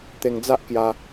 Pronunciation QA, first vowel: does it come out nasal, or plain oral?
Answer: oral